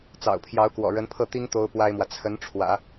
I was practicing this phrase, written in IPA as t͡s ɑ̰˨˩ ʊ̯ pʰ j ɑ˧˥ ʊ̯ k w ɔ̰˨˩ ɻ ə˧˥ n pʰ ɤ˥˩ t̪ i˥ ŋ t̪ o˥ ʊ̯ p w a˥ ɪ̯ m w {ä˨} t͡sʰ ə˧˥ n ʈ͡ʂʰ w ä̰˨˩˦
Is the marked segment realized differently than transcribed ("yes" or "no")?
no